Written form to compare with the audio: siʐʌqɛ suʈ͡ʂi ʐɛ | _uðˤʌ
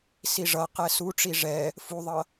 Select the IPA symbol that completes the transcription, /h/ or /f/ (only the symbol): f